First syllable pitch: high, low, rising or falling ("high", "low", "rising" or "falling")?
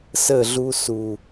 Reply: falling